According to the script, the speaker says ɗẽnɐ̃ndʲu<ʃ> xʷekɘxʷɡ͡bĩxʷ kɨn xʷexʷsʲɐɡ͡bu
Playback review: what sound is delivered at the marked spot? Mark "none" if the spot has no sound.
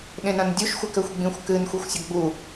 ʃ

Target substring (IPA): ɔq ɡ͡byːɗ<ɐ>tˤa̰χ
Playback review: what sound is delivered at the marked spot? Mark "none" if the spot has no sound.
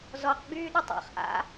ə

